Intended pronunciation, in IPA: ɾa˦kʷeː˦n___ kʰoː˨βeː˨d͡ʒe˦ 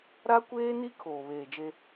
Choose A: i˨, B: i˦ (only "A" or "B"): B